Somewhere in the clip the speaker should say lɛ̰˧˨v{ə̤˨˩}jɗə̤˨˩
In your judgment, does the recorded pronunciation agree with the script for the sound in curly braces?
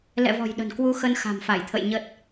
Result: no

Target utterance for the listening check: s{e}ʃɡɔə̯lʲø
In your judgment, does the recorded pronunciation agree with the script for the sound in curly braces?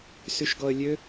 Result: no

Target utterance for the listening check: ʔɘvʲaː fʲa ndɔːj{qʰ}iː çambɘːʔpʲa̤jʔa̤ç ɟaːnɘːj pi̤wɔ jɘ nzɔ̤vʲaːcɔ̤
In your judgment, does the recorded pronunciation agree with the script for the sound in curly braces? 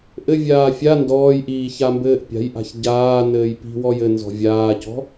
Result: no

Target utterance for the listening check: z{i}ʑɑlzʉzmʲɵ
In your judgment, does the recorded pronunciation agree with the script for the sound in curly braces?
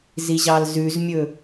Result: yes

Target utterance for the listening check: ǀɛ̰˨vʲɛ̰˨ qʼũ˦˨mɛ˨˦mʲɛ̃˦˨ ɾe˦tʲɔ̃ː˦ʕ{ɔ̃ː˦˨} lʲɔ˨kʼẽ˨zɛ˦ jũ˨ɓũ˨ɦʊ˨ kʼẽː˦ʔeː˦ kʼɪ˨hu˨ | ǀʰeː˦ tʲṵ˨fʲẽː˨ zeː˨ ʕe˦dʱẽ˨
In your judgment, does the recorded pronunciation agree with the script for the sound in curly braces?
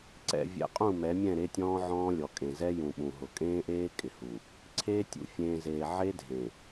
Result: no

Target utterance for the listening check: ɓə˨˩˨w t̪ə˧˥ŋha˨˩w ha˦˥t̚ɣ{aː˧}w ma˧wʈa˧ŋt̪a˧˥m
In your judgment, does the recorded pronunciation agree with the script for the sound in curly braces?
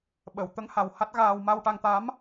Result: yes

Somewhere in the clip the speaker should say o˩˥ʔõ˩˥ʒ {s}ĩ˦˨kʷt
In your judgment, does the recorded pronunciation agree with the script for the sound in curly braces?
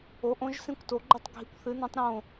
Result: yes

